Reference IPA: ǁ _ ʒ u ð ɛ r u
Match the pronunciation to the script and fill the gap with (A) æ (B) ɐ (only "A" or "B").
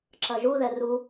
B